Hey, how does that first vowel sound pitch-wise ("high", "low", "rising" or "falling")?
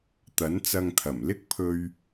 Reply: rising